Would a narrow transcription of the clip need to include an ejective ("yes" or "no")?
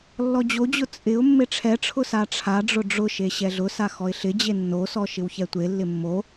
yes